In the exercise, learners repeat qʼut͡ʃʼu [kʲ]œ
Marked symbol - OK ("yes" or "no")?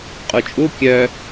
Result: yes